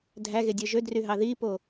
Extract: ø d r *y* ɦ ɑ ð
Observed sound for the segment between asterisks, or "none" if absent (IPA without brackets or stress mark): y